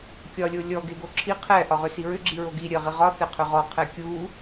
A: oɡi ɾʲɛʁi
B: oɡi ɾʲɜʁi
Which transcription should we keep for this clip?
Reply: B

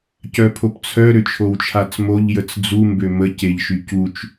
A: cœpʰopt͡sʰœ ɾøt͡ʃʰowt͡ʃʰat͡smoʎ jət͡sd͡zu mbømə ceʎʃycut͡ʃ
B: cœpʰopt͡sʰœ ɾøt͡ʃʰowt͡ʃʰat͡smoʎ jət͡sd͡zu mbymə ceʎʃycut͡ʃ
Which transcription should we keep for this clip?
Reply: A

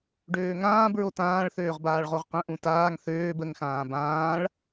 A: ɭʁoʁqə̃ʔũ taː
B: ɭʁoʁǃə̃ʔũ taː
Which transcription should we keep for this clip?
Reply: A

